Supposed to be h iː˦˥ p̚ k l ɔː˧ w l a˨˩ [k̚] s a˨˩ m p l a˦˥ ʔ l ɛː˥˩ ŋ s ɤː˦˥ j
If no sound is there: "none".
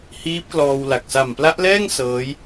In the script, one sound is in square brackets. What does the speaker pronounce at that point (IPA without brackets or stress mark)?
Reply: k̚